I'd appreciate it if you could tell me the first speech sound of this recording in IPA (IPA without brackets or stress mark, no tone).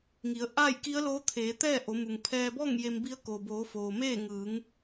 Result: ŋ